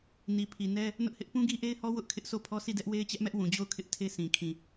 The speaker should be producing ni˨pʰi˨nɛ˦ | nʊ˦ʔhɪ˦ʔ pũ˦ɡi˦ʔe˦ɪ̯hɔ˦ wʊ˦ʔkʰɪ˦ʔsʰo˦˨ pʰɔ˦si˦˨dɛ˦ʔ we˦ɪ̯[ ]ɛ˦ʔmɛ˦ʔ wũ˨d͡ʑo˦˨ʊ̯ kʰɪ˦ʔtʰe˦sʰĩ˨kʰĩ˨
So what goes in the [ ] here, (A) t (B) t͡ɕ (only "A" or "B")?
B